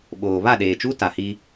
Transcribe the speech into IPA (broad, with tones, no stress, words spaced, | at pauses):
ɓoː˨ βa˦˨ɗeː˨t͡ʃu˦ ta˨hi˦